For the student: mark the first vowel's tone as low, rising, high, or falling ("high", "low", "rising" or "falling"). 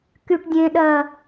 high